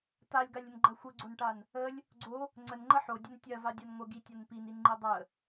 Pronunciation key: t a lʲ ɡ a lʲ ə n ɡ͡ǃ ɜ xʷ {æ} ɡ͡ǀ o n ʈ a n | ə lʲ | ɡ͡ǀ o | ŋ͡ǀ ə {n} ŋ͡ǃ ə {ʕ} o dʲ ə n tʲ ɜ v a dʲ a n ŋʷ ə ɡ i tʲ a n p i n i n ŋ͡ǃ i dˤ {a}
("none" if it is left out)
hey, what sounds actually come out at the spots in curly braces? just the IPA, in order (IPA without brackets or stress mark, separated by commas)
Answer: ə, n, ħ, ə